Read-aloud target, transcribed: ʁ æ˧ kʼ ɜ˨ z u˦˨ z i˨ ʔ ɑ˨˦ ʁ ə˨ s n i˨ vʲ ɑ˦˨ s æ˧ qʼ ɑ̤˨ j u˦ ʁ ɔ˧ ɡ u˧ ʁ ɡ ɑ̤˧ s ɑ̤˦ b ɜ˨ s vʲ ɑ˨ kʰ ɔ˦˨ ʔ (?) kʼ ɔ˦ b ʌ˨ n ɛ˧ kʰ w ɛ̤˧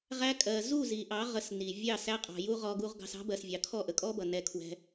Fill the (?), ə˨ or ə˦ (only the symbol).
ə˨